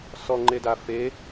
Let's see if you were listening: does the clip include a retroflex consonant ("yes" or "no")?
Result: no